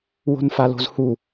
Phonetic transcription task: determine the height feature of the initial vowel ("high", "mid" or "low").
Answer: mid